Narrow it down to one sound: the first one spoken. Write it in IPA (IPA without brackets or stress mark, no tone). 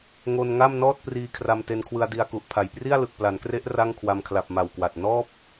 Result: ŋ